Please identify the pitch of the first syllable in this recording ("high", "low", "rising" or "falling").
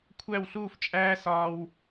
falling